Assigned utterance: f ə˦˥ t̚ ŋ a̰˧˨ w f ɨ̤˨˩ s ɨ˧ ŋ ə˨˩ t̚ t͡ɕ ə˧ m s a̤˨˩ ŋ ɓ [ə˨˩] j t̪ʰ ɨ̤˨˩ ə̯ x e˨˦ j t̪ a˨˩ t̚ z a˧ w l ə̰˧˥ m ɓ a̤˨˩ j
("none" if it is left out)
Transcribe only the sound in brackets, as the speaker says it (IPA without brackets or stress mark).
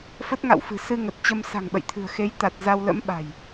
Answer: ə̰˧˨